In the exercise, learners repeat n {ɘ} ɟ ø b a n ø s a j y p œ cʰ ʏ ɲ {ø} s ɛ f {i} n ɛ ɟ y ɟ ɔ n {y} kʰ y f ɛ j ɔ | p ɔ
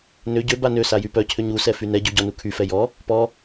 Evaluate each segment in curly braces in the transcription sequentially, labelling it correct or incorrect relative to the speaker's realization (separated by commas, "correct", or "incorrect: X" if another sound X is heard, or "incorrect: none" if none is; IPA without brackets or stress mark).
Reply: incorrect: ø, incorrect: u, incorrect: y, incorrect: u